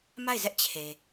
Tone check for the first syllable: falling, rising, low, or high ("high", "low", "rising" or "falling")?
falling